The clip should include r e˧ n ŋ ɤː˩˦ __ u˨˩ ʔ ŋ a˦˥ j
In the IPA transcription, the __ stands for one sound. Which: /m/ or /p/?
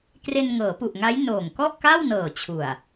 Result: p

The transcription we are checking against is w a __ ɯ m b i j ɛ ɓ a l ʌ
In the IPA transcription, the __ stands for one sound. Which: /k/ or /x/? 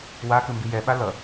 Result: k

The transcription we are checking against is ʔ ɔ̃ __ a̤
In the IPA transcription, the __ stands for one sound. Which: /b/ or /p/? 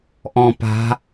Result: p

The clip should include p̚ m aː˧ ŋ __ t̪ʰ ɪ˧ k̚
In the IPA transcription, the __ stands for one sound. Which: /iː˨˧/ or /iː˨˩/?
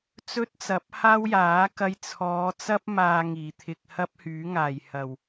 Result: iː˨˩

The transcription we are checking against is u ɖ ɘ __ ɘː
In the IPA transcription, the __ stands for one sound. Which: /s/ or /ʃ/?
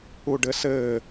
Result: s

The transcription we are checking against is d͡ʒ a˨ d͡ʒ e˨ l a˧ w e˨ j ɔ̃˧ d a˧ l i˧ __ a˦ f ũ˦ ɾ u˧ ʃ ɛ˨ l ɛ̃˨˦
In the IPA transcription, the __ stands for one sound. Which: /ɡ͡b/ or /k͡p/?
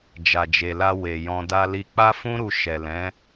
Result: k͡p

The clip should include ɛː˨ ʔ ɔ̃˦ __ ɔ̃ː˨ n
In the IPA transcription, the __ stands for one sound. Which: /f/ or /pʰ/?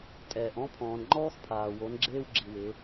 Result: pʰ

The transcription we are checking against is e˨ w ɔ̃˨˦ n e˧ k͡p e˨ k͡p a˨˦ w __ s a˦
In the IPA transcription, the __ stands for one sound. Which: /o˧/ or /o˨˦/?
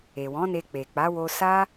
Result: o˧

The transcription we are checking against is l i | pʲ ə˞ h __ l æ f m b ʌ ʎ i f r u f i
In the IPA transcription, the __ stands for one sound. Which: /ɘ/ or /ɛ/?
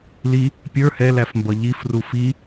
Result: ɛ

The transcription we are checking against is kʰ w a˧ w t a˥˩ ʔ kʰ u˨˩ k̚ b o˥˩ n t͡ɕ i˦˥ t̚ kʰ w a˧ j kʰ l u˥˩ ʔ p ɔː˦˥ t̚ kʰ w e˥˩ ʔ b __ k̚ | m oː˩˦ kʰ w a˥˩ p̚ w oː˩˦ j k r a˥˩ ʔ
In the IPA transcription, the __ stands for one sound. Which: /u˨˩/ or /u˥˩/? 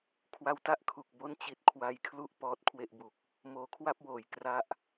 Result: u˨˩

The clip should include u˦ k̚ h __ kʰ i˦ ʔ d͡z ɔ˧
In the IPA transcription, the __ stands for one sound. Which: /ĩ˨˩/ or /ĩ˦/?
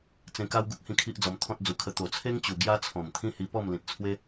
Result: ĩ˦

